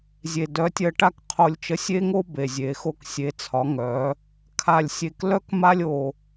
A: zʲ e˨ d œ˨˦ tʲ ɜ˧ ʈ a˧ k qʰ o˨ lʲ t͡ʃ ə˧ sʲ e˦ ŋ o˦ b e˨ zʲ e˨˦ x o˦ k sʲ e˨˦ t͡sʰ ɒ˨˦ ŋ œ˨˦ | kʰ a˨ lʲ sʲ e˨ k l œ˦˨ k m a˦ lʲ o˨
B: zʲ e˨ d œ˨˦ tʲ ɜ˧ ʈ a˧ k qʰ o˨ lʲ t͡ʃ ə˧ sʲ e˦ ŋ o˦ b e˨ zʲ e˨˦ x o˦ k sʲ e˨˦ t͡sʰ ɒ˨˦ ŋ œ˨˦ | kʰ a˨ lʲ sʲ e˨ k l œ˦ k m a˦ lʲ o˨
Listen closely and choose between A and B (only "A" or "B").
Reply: B